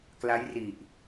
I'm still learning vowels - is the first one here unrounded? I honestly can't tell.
yes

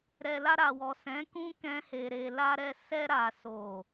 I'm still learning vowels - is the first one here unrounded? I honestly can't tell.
yes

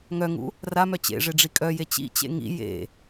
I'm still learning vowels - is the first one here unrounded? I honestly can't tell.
no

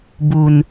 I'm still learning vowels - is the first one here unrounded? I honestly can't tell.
no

